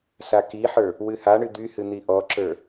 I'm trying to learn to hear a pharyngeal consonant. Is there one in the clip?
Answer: yes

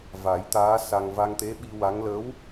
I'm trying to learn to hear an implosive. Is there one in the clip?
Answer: yes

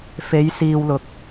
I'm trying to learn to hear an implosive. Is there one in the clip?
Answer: no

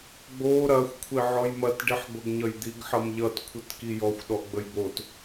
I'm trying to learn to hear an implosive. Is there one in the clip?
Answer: yes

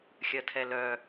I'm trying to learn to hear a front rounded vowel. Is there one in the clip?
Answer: yes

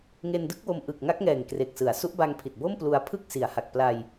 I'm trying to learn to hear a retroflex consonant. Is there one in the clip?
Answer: no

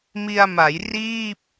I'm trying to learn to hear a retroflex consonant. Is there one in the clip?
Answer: no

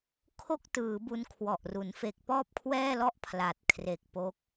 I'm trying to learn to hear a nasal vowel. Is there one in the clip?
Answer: no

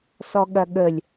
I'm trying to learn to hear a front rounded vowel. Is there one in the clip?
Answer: no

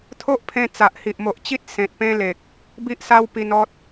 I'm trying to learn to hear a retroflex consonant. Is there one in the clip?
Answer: no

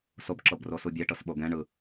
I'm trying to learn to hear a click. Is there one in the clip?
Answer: yes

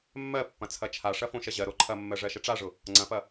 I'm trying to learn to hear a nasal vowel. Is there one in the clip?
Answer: yes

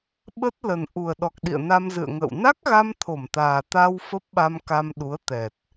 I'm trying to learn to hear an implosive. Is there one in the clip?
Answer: yes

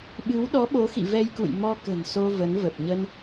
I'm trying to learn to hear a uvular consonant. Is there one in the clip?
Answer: no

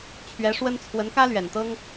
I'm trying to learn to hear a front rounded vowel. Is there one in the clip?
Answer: no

